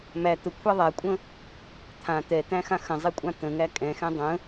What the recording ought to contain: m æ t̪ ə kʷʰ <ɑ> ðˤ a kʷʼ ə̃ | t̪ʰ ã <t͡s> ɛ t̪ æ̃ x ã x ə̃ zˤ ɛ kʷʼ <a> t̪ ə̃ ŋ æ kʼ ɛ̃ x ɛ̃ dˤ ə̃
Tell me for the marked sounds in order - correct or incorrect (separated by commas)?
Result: incorrect, incorrect, incorrect